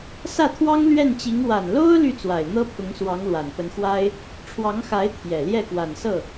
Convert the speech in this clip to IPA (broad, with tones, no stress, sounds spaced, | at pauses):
s ä˥˩ t̪ʰ w ɑ˥ ŋ l ɥ ɛ˥˩ n t͡ɕ i˧˥ ŋ w a˨˩ n l o˥ ʊ̯ l y˥˩ t͡s w a˨˩ ɪ̯ n̪ ɤ˥ pʰ ʊ˧˥ ŋ s w ɑ˧˥ ŋ l w a˨˩ n p ə˧˥ n x w a˥ ɪ̯ | ʈ͡ʂʰ w ɑ˧˥ ŋ x a˧˥ ɪ̯ t̪ʰ j ɛ˨˩ l j ɛ˥˩ k w a˨˩ n s ɤ˥˩